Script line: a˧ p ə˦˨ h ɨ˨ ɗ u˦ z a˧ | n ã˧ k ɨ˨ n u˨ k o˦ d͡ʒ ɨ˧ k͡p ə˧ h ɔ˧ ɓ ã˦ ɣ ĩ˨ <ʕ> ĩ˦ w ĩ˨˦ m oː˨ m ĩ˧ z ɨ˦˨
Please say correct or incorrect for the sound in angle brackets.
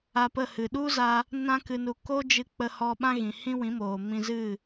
incorrect: h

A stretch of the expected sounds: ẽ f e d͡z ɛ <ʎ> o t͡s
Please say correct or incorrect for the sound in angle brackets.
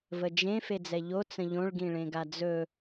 correct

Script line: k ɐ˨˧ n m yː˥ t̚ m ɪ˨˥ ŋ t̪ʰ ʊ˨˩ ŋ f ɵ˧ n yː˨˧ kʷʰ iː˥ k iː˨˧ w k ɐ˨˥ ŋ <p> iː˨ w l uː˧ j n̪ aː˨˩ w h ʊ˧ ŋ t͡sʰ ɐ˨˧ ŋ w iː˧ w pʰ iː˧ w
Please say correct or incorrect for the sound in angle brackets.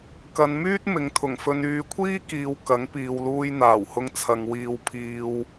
correct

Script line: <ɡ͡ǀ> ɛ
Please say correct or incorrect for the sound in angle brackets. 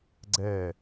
correct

